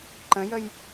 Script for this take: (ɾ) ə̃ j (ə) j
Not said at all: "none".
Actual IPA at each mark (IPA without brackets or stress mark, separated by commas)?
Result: ǃ, ə